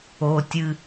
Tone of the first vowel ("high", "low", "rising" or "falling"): high